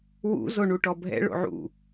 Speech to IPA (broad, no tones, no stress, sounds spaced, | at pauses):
w ṵ z o ɳ u ʈ ɔ bʱ ɛ̰ ɭ o̰ ʕ ṵ